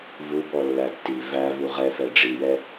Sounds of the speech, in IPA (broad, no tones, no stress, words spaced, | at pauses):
vubɔ lːætːi vævu ʁɛ fɛɖ͡ʐijɛ